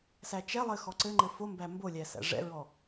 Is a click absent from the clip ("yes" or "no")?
no